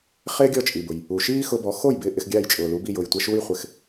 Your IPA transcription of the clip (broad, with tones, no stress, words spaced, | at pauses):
χɪː˥ɡʲɔ˥˩t͡ʃʼi˩bʊ˩j | u˩ʃiː˥ xʊ˧bɔ˩˥xo˥˩j bɪː˥˩ʔɪ˧xɡʲaː˥˩j t͡ʃʼʊː˩lu˩˥bi˥˩ jʊː˩jtʷɛ˧ʃuː˥jχʷɪ˩˥x